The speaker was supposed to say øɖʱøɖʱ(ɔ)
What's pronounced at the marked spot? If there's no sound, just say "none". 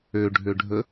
ə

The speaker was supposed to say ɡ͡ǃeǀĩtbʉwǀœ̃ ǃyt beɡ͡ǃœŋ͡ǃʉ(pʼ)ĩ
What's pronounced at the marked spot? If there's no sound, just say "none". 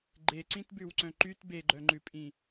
pʼ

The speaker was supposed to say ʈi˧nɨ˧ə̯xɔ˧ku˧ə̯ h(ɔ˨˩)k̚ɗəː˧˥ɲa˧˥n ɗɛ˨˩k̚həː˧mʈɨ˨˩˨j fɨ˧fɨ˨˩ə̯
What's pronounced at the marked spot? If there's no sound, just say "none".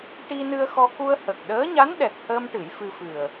ə˨˩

